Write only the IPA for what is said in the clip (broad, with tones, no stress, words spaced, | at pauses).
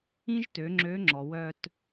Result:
ĩ˥ʒtø˩˧ ŋ͡ǁø˧˥ŋ͡ǁɔ˩wœ˧t